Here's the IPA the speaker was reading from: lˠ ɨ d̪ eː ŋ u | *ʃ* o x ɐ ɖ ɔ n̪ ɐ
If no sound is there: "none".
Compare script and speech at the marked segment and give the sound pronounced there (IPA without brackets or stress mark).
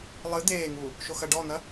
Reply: ʃ